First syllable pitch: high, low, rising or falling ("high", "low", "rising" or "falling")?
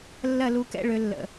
falling